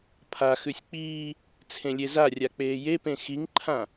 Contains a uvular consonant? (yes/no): no